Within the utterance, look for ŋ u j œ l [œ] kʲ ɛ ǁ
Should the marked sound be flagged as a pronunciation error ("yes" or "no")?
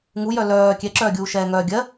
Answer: yes